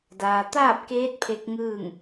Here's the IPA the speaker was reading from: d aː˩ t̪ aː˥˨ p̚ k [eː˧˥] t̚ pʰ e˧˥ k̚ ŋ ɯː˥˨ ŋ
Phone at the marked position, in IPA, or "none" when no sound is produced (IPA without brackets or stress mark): eː˧˥